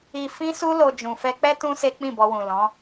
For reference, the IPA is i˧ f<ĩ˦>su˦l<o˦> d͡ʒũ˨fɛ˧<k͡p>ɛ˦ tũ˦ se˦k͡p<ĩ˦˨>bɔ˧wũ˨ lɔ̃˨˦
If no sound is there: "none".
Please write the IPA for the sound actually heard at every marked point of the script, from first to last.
ĩ˦, o˧, k͡p, ĩ˦˨

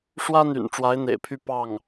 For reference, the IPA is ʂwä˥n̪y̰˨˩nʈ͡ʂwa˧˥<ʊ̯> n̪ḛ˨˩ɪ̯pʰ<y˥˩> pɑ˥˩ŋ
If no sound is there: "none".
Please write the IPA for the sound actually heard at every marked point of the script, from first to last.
ɪ̯, y˥

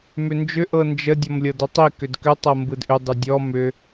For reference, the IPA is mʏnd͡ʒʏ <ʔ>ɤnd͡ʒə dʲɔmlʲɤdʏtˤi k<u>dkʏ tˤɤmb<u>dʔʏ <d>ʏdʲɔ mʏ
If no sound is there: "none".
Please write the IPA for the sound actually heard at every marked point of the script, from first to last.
ʔ, ʏ, ɯ, dˤ

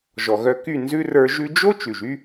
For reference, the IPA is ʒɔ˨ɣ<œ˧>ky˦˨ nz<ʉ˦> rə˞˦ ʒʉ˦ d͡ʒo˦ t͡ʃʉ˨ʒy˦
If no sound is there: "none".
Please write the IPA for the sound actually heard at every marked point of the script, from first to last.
œ˧, ʉ˧

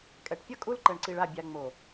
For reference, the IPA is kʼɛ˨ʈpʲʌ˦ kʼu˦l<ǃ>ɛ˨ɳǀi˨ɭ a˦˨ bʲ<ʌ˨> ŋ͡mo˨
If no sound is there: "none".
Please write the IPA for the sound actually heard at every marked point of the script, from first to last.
ǃ, a˨

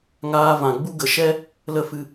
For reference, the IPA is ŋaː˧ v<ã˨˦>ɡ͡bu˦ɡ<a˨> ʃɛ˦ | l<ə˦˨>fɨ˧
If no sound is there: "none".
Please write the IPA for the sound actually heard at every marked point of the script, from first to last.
ã˨, ə˨, ə˦˨

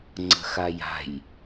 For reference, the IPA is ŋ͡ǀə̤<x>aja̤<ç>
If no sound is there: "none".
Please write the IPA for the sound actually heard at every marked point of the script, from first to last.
x, j

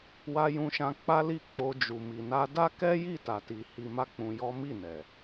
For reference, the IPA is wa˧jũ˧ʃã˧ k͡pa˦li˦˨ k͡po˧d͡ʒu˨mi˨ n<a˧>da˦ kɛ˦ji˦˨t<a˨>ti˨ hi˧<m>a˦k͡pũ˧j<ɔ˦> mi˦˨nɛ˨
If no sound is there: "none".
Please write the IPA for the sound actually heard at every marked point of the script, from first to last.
a˧, a˨, m, ɔ˦

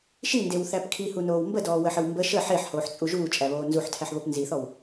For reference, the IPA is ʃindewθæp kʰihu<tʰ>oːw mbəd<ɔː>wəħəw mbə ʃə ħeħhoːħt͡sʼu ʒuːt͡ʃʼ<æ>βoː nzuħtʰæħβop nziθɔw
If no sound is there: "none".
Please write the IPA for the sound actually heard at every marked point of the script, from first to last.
n, ɔː, æ

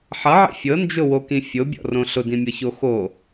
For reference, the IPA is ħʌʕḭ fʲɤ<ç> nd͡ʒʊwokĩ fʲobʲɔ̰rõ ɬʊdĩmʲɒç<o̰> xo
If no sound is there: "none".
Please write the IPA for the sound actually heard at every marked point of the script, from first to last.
none, o

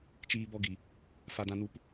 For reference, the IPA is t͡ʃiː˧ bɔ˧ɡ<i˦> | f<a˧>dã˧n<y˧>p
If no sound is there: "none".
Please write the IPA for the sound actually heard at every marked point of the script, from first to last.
i˨, a˧, u˧

